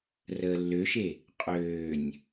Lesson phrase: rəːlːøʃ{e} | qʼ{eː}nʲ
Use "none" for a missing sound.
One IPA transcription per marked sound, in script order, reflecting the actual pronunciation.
e, øː

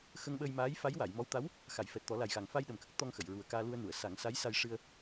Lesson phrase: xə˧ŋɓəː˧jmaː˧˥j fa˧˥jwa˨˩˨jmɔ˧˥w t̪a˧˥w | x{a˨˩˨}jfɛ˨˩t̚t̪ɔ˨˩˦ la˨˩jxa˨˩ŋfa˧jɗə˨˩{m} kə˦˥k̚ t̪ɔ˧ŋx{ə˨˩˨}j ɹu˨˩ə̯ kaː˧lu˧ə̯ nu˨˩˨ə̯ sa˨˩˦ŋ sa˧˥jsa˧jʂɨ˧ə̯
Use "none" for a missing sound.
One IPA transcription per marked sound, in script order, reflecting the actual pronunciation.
a˨˩˨, m, ə˨˩˨

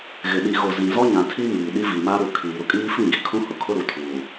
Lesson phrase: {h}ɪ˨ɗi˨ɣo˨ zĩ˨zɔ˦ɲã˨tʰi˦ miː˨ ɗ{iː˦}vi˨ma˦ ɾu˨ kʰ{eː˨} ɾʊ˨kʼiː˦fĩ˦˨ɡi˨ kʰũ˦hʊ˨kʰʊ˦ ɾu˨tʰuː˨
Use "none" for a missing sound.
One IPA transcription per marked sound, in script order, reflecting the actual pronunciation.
ɣ, i˦, iː˨

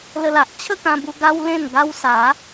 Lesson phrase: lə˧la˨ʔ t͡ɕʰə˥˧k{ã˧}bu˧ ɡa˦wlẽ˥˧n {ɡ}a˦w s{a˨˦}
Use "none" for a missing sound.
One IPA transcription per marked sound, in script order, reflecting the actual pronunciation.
ã˧, ɡ, a˨˦

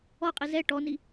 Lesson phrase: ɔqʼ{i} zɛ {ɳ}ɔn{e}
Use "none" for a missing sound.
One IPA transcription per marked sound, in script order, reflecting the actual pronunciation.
i, ʈ, i

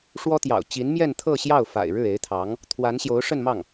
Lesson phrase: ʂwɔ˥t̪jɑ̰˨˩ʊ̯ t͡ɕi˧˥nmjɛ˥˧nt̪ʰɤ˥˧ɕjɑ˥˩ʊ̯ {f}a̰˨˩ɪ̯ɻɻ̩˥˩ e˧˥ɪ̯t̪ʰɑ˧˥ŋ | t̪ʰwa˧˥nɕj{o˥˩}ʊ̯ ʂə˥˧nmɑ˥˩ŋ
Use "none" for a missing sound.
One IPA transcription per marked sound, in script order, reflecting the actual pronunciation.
f, o˧˥

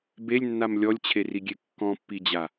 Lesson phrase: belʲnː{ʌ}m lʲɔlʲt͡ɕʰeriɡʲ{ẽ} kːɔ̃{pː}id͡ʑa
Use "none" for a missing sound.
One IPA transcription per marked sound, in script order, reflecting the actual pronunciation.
a, e, pː

